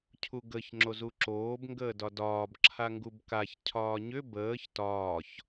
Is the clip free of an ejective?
yes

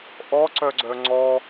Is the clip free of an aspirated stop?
yes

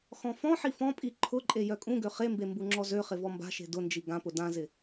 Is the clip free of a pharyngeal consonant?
no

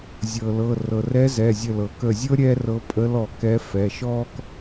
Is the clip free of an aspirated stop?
yes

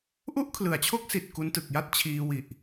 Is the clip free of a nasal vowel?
yes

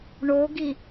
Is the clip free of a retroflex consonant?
no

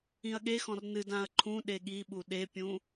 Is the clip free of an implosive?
no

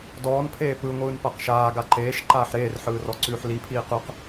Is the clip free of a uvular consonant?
no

